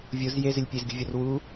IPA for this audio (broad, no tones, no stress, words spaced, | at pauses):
vʲoz jezɪlʲ pʲezɡʲṳvʲɒr wu